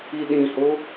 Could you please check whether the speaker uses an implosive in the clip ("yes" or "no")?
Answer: yes